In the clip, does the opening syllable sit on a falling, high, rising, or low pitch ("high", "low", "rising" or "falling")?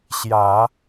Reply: low